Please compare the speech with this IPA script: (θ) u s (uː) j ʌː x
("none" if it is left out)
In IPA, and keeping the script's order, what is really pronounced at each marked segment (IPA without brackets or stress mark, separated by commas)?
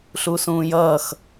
ɬ, ũː